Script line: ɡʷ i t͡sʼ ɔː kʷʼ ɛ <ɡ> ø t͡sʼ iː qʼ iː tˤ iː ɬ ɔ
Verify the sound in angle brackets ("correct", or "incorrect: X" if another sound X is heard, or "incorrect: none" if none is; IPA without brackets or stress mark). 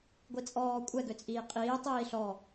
correct